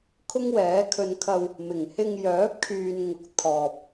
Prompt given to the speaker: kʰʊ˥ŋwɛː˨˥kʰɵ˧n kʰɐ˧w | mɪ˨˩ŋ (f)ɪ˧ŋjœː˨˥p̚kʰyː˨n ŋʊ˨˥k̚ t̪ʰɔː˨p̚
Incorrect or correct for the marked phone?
incorrect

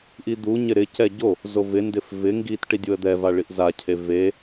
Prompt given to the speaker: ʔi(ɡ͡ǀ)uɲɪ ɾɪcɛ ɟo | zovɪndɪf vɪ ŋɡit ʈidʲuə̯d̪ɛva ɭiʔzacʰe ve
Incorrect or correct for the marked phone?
incorrect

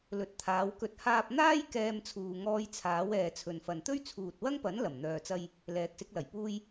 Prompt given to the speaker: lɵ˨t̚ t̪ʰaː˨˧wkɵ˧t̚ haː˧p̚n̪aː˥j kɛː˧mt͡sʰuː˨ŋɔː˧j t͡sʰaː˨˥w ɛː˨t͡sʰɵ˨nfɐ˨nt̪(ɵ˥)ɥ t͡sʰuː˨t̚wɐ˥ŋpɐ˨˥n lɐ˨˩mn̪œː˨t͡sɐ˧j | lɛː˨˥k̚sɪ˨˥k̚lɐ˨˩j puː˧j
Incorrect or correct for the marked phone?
correct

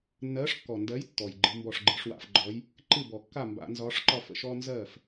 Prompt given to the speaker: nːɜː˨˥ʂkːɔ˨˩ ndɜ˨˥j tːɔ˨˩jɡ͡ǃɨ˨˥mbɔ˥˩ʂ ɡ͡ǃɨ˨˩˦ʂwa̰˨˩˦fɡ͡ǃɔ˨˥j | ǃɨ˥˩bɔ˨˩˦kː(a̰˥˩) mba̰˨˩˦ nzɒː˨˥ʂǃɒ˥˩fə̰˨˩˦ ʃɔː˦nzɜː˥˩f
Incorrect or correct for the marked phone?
incorrect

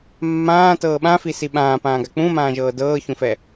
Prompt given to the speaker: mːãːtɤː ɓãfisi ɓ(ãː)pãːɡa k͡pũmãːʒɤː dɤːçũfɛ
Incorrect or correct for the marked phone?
correct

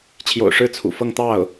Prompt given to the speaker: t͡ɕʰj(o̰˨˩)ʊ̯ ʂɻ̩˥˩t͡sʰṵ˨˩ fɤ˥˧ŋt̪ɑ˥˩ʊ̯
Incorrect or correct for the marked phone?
correct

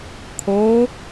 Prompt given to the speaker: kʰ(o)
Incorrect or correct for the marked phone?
correct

